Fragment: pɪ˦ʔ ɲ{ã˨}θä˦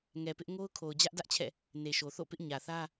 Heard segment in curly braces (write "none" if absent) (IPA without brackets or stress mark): ä˨